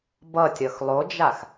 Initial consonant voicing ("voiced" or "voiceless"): voiced